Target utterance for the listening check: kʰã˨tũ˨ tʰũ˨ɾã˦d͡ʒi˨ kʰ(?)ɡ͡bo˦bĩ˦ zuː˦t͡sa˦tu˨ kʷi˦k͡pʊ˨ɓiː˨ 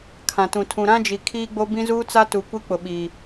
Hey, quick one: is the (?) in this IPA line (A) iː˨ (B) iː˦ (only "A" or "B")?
B